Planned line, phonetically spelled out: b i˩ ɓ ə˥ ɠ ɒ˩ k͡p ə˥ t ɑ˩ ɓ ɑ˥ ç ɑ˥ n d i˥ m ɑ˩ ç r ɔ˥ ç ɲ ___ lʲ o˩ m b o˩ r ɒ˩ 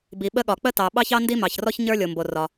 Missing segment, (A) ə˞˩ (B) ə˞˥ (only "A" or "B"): B